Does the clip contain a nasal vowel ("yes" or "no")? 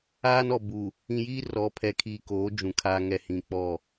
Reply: yes